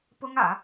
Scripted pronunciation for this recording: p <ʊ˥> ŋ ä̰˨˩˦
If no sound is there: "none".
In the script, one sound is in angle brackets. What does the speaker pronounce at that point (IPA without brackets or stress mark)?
ʊ˥